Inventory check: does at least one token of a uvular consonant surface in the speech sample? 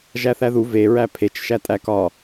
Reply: no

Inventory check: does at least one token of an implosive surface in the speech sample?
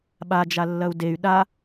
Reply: yes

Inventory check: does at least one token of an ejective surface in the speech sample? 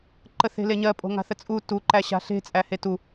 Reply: yes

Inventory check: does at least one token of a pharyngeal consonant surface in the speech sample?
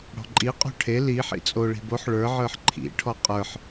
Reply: yes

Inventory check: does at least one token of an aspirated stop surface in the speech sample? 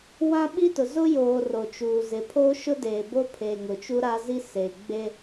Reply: yes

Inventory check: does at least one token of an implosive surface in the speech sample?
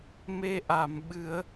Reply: yes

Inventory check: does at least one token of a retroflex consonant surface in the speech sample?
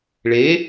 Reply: yes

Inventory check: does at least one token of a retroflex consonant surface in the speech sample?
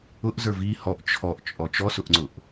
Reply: no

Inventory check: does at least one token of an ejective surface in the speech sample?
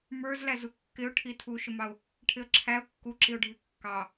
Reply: no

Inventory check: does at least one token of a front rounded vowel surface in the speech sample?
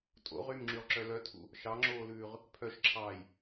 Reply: yes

